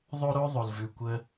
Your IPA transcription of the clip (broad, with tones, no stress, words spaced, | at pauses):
ðˤo˦ɾo˦ ðˤo˨lvʉ˨ kʷə˧